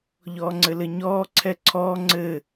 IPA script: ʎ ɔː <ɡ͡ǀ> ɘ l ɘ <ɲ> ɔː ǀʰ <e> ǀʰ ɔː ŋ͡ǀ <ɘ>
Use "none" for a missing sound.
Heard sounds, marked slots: ŋ͡ǀ, ɲ, ɛ, ɘ

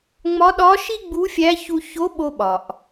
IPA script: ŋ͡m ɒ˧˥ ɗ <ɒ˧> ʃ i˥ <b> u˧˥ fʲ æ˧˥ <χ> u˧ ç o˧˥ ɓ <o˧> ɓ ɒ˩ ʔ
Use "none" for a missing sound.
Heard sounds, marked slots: ɒ˧˥, ɡ͡b, ç, o˧

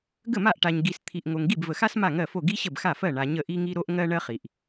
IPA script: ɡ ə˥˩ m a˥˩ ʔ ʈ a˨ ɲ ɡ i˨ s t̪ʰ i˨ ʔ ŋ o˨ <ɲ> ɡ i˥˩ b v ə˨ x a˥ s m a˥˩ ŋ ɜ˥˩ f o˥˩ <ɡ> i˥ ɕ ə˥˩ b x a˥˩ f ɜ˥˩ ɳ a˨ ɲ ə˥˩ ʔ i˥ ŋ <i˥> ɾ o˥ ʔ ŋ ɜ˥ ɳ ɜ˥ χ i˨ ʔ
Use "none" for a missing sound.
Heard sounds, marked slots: ŋ, ɡ, i˥

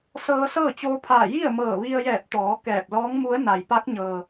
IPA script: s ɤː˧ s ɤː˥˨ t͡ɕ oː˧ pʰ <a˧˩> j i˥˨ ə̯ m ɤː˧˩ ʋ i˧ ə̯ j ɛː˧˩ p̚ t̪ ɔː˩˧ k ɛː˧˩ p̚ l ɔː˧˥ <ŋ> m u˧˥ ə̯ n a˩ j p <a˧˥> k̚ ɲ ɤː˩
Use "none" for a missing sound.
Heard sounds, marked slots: aː˧˩, ŋ, a˧˥

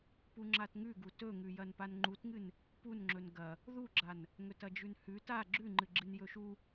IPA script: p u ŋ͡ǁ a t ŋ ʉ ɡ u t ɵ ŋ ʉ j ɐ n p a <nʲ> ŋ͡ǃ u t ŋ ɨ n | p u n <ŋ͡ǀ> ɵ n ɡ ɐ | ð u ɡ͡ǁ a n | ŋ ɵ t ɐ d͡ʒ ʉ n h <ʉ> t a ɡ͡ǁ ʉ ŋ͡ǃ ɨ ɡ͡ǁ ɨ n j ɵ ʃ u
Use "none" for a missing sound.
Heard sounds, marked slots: n, ŋ͡ǁ, ʉ

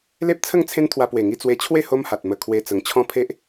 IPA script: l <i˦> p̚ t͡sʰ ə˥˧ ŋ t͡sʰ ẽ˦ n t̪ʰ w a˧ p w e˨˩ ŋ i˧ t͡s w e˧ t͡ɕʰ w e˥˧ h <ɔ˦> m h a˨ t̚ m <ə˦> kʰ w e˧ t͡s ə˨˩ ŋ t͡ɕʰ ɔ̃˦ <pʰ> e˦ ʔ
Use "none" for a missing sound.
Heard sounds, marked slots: e˦, o˦, ə˧, pʰ

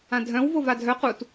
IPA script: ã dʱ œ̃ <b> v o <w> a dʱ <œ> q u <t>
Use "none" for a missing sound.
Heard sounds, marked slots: w, v, œ, t

